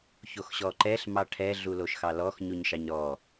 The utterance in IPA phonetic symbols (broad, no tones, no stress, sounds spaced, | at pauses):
ç o x ɕ ɔ ǃ ɛ ɬ m ɑ ʈʰ ɛ ɮ u l o ʃ x ɑ l ɔ x ɲ u ɲ ʃ ɑ ɲ ɾ ɔ